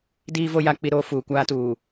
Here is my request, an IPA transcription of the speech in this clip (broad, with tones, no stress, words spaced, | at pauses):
diː˦vo˦ ja˦k͡pi˦ɾoː˦fuː˨ kʷaː˦tuː˨